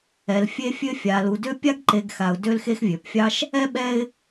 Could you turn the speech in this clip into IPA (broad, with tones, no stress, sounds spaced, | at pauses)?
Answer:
ɛ˩ l fʲ e˦ fʲ ø˦ fʲ a˩ l u˩ d ø˦ pʲ a˥ ɡ ǃ e˨ ɡ x a˩ ʊ̯ d ø˦ l x e˦ x vʲ ø˩ p fʲ ɑ˥ ʃ | ɛ˥ ɓ ɛ˦ ɪ̯